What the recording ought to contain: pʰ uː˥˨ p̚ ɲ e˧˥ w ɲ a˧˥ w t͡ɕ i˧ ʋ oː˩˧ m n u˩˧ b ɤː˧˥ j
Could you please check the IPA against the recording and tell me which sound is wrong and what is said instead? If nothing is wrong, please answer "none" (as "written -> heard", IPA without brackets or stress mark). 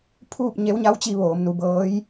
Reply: none